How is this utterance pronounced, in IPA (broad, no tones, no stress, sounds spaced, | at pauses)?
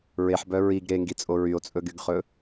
ɹ e ħ b œ ɹ i ɡ ɾ e ŋ ɡ i t͡sʼ o ɹ y o̯ t͡sʼ ɵ ɡ y ɡ χ ɵ